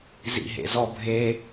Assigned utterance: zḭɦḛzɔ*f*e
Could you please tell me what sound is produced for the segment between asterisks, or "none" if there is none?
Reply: bʱ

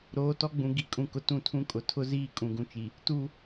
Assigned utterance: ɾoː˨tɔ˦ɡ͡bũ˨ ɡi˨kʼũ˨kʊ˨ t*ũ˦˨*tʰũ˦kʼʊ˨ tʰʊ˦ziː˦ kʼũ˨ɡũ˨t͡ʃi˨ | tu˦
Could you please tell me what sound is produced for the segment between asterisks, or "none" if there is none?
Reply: ũ˦˨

